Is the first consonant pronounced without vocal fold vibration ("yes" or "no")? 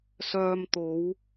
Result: yes